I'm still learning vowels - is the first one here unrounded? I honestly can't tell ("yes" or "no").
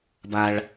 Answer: yes